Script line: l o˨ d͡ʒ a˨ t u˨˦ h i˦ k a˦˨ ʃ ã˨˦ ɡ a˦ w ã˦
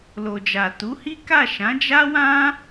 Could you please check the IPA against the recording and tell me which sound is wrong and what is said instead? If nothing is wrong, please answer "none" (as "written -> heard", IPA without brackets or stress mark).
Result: ɡ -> d͡ʒ